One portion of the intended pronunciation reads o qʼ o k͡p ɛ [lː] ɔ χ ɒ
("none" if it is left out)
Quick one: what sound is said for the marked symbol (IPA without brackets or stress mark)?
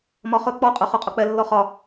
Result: lː